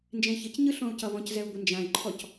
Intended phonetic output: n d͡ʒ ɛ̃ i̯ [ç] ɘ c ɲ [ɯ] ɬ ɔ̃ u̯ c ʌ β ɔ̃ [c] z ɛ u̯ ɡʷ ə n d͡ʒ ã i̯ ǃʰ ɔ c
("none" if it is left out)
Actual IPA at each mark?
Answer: ç, ɯ, c

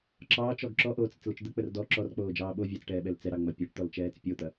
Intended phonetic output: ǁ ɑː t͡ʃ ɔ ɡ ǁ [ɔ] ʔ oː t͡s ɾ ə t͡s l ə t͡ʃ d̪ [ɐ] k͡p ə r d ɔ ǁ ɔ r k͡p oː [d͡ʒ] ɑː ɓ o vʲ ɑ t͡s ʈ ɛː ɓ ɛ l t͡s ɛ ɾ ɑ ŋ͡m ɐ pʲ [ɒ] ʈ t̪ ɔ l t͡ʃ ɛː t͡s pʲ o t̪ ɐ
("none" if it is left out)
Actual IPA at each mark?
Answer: ɔ, ə, d͡ʒ, ɑ

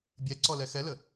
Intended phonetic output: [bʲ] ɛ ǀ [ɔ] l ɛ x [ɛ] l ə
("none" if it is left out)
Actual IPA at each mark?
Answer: bʲ, ɔ, ɛ

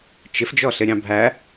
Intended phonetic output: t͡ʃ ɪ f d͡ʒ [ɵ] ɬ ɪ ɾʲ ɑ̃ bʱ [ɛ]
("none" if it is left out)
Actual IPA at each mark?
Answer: ɔ, æ

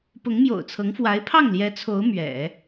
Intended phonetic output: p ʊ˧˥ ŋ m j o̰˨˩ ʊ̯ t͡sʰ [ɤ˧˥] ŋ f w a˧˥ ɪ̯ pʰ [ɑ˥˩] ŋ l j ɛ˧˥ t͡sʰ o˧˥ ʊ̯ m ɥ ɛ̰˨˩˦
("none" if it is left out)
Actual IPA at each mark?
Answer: ɤ˧˥, ɑ˥˩

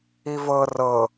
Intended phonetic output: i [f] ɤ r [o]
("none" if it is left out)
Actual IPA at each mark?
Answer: v, ɤ

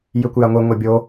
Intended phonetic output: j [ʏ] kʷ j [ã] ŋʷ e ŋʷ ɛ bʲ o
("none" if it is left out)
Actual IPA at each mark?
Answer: ʏ, a

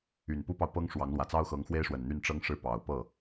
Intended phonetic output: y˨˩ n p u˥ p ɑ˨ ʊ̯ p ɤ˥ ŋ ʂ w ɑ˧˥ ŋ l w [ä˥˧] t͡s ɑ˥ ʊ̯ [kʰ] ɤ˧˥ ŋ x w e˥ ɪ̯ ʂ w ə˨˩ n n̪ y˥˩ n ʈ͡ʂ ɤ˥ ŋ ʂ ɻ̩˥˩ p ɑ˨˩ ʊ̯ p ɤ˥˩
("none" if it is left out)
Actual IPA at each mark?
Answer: ä˨˩, x

